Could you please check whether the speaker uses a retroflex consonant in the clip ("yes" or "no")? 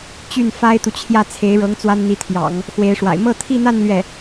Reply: yes